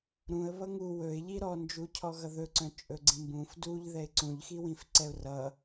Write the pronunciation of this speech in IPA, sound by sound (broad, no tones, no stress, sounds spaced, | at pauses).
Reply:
ɾ ũ ə̯ β ʌ ŋ u w ɵ ɪ̯ ʎ i ɾ ɔ n d͡ʒ u cʰ ɔ ɣ ʌ ð ɵ ǀ œ̃ t͡ʃʼ ɵ ɡ͡ǀ ĩ m b ũ f d u ʎ ð ɛ ɪ̯ ǀ ũ ʎ x i w ĩ f ǀ ɛ ʊ̯ r ʌ